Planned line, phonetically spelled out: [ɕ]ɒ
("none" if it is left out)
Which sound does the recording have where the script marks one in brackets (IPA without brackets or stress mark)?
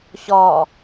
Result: ɕ